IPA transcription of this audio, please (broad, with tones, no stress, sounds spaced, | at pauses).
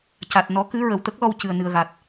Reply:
c a˨˩ t̚ n ɔ˨˩˦ k ɨ˧˥ ɹ ə˨˩ w t̪ ə˦˥ k̚ l ɔ˧ w c ɨ˨˩ ə̯ n ɨ˨˩ ə̯ ɣ a˨˩ t̚